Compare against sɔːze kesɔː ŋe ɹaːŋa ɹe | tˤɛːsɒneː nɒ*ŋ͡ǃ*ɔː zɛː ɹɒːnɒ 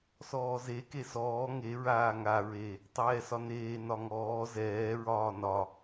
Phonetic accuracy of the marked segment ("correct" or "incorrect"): incorrect